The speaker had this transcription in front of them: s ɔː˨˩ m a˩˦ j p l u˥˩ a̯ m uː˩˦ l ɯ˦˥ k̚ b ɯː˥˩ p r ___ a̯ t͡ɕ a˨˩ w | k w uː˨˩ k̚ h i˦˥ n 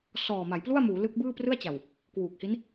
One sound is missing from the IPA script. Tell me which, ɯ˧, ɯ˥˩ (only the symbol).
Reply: ɯ˥˩